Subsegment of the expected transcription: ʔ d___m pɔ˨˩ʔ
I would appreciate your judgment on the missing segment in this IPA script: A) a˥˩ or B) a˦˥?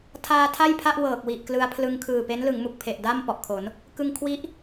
A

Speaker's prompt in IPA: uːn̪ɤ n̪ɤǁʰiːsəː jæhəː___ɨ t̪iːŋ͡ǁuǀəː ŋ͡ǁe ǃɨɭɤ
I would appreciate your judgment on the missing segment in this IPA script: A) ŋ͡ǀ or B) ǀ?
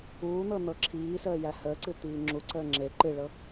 B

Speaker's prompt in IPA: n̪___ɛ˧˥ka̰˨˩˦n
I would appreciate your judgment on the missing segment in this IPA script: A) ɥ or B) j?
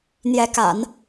B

